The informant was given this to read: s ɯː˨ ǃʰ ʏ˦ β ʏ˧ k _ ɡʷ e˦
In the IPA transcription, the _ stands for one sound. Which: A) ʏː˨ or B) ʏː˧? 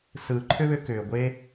A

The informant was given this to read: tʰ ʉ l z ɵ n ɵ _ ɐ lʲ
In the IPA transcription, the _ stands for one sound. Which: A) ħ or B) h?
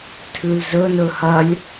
B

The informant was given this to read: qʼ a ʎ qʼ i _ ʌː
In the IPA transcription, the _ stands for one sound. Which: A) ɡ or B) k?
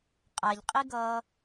A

